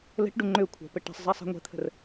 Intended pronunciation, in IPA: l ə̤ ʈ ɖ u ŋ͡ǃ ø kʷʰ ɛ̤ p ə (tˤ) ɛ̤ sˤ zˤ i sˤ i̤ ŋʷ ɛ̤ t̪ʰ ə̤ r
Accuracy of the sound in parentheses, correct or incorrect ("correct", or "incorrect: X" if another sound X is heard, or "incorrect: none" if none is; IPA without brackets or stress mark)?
incorrect: ʈ